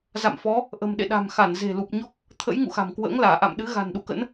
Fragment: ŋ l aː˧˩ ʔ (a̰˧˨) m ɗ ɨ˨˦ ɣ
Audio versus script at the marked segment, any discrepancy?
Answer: no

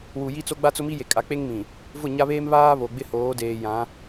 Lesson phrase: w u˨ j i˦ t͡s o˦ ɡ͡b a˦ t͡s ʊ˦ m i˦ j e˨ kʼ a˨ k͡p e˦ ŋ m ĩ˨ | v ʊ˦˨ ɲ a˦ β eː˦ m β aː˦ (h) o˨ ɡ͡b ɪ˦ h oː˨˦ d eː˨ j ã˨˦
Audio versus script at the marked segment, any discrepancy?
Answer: yes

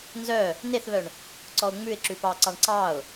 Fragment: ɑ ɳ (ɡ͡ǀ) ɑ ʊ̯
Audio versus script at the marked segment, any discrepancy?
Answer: yes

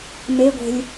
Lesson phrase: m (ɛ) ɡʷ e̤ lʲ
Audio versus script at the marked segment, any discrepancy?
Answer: yes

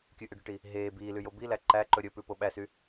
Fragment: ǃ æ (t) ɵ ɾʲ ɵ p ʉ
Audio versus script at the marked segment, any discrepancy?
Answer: yes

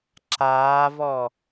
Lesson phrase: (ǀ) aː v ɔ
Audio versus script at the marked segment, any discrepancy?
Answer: yes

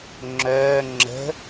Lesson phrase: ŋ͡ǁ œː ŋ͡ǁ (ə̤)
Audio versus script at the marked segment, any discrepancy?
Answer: no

